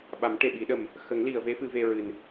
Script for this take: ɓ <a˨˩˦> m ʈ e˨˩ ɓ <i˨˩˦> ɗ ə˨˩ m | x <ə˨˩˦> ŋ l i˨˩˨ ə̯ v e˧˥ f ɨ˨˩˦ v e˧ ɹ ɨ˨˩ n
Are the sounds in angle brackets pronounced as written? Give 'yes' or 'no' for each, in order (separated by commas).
yes, yes, yes